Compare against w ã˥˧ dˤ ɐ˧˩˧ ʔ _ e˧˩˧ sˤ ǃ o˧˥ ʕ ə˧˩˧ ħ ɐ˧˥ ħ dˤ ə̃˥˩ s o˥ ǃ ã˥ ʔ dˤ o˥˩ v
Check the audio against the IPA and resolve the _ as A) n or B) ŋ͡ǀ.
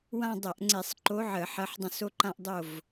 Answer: B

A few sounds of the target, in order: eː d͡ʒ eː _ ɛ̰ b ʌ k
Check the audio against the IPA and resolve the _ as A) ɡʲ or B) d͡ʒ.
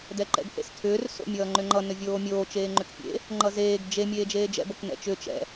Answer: B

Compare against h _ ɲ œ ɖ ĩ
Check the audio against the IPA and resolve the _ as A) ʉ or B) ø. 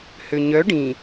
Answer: B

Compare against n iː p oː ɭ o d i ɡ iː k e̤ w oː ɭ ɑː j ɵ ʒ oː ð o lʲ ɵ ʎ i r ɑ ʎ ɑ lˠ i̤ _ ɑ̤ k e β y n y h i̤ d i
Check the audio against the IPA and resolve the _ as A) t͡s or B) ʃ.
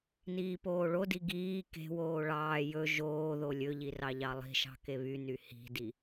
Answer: B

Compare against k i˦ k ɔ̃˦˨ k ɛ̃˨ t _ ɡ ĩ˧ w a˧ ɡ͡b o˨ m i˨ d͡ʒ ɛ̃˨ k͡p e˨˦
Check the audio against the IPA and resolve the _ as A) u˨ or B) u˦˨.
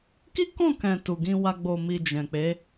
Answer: A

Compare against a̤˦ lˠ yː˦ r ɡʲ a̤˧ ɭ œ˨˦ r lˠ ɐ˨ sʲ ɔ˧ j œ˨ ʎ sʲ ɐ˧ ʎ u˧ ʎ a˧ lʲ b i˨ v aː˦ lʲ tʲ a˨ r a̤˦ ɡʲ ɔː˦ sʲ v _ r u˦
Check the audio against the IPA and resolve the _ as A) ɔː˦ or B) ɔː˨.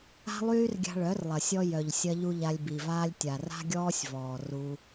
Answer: B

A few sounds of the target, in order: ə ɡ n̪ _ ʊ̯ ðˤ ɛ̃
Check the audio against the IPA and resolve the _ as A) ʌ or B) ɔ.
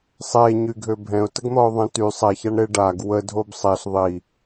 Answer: B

